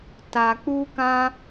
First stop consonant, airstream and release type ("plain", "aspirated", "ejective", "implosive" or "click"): plain